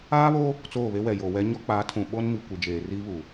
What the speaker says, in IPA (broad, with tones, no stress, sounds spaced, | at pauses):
aː˦ β oː˦ | t͡s oː˦˨ β e˦ w ɛ˨ j oː˨ w ɛ˦ ɲ ɔ˦ k͡p aː˨˦ tʰ ũ˨ ɓ o˦ n m i˨ kʷ i˨ d͡ʒ eː˨ r iː˦ β uː˨